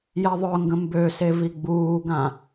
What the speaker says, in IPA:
jɛðˤœŋɡə̃ mbøse viɡ͡buːɡã

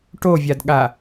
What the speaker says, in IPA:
ʈovʲadɠa

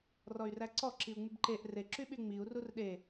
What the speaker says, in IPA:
rɔy̯ræǀɔ ǁiu̯ŋ͡mybǃeʔ re ǁyɓyŋ͡miu̯ rurɗe

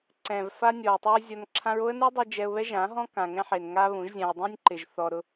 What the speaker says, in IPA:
ǀɛ̃˨vfa˦nʲɔ˨ʊ̯tˤɪ˦ɹ zʲɔ˧nǁʰã˦ɹ o˦ə̯nu˦dˤi˧ d͡ʒɛ˧ʊ̯βɛ˦ʒã˨˦ɦɔ̃˦ kã˨ŋɛ̃˦ħe˨n ŋa˦βũ˨˦ʒzʲã˧ʊ̯ dˤũ˦nʲǃɪ˨ʒ θɔ˧ ɾʊ˧

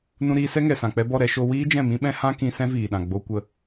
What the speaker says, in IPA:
nũ˧ɾiː˧sɛ˦ ŋɛ˨sã˨k͡pɛ˧bɔ˦˨ ɾɛ˧ʃo˧ wiː˦d͡ʒɛ̃˦˨mĩ˦ɓɛ̃˦ hã˦ kĩ˧ sɛ̃˦viː˨ɗã˨ ɡ͡bo˧ kʷə˧

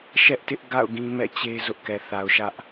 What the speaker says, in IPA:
ʃɛ˦ʔtɪ˦ʔɡa̰˦˨ʊ̯ ɡĩ˦mɛ̰˦˨t͡ɕe˦ zʊ˦ʔkɛ˨ θa˨ʊ̯ʃä˦ʔ

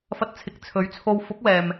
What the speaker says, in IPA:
fɐ˧t̚t͡sʰɪ˨˥k̚ t͡sʰɵ˨˥ɥt͡sʰo˧w fʊ˨˥k̚wɛː˨m

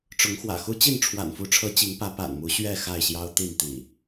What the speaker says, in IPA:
ʈ͡ʂʊ˨˦ŋxwä̰˨˩xu˦ t͡ɕi˥˨nʈ͡ʂʰwa̰˨˩nfu˨˦ʈ͡ʂʰɤ˨˦ t͡ɕi˨˦ŋpä˨˦ pa̰˨˩nmu˨˦ɕɥɛ˥˨ xa˥˨ɪ̯ɕjɑ˦ʊ̯t̪i˥˨n t̪ḭ˨˩

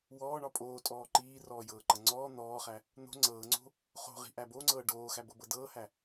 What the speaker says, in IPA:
wɔːɳɒ pʼoːtʼɔː ǃiːrɔːjɤːǃɐ ŋ͡ǀɔː n̪ɔːχæ | n̪o̤ ŋ͡ǀɤːŋ͡ǀo̤ | χo̤ʁi̤ʔæ boŋ͡ǀɤː ɖoːxæbɤbɤ dɤːhæ

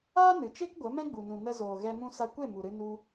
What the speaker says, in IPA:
aː˦nɨ˨t͡ʃe˦k ɡʷə˨˦ mɛ̃˦ɡ͡bu˨nũ˨ nə˧zoː˨ɣɛ˧ mũ˧sa˧kʷe˦˨ mu˨ɾɨ˧ nu˧

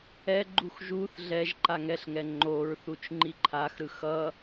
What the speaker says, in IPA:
ɛɡ͡ǃux ʒuθ ɮɛʒ ǃaŋɛɬŋɛ ŋ͡ǃoɹθut͡ʃ ŋ͡ǃiǃʰaxɾɯ xʌ

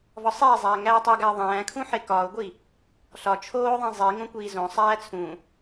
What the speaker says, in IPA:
vɒsˤiːzˤæː ŋæːtˤuɡæə̯ ðˤæ̃ːkʰũ ħekɒːʊ̯ɡʷi | ɬɒ t͡ʃʰoːðˤĩ zˤi ŋõkʷiːzõsˤæː t͡sʰũ

